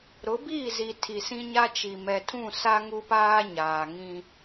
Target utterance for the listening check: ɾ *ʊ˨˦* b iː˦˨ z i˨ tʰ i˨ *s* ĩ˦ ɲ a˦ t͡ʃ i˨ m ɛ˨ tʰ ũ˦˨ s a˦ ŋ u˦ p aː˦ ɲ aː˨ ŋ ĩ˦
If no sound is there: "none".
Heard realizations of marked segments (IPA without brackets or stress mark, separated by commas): ʊ˨˦, s